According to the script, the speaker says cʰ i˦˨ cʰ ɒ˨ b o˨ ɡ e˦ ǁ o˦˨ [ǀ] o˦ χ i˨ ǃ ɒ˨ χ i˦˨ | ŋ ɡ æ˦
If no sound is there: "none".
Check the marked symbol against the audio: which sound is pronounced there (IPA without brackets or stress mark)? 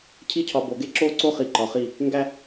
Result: ǀ